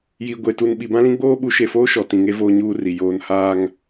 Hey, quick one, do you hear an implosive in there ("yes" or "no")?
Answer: yes